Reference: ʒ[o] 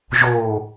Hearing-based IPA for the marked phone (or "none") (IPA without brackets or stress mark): o